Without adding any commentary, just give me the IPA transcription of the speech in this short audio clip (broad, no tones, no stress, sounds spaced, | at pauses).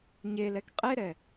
ɲ e l ɛ k qʼ e ɾ ɛ